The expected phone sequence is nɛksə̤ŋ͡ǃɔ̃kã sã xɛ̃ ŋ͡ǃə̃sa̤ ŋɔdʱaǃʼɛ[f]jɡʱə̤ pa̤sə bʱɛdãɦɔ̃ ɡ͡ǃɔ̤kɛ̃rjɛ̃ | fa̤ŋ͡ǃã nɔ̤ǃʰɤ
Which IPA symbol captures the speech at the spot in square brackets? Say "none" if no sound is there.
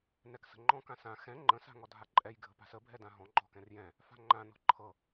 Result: none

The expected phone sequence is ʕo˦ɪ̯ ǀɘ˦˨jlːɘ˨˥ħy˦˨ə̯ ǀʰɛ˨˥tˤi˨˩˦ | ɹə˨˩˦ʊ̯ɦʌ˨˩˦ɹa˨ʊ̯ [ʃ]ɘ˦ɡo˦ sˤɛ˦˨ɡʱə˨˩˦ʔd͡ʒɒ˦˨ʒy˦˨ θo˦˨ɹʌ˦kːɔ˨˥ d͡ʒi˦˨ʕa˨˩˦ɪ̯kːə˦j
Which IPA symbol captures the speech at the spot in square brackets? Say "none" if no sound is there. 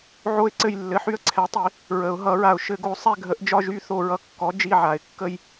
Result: ʃ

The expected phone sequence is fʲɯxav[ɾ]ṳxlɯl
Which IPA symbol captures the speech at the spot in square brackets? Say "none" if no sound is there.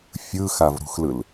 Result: ɾ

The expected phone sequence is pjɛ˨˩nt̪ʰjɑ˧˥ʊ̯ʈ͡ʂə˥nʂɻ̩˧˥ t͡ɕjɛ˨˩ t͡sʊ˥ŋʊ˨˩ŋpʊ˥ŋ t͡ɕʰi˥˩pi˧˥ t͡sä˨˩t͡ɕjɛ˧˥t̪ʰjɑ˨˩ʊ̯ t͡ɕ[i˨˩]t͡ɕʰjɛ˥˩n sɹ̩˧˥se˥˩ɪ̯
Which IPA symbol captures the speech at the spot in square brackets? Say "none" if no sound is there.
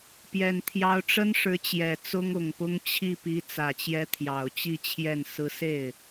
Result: i˥˧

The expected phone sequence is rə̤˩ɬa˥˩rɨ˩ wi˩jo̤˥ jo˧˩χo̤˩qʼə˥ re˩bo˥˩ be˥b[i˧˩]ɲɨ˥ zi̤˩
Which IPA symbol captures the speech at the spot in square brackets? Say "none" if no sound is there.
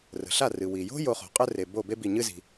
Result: i˧˩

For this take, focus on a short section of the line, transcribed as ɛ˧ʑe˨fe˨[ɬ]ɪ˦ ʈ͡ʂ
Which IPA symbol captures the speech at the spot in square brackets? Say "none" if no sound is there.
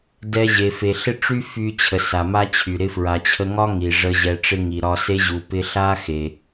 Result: ɬ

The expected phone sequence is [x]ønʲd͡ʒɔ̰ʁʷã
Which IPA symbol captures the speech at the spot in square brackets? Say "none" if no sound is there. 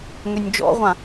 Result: ŋ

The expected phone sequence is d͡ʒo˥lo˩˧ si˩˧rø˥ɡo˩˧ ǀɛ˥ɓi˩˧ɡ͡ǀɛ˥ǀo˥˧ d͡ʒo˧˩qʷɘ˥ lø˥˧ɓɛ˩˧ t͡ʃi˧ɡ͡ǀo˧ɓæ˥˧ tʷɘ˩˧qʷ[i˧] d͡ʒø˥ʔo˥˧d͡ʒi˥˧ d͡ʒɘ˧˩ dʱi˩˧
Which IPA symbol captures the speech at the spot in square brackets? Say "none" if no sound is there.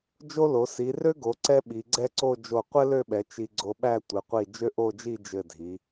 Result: i˧˩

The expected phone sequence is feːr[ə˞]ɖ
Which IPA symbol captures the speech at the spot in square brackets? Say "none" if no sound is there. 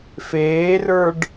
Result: ə˞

